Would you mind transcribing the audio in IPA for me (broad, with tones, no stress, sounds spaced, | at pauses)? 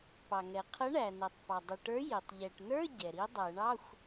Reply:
p ɑ˩ ŋ ɛ˩ qʰ ʌ˨˥ ɳ æ˩ n ɛ˩ tˤ p ɑ˩ dˤ i˩ ʈ ə˞˨˥ j i˩ tˤ ʎ ɛ˩ ʈ n ə˞˧˥˧ ɟ ɛ˩ ɾ i˨˥ dˤ æ˨˩˦ ɳ ɑ˧˥˧ xʷ